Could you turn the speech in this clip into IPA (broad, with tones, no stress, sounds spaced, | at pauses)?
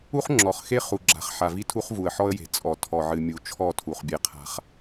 u˦ χ ŋ͡ǁ ɔ˨ χ x e˦ χ u˨ ɡ͡ǁ a̤˨ χ ħ a˨ v i˦ tʰ u˦ χ v u˨ ə̯ ħ ɔ˦ ə̯ j e̤˨ t͡sʼ ɔ˨ tʰ ɔ˨ ʕ ɨ˨ mʲ u˨ t͡ʃʰ ɔ˦˨ tʰ u˨ χ bʲ e˦ qʰ a̤˦ χ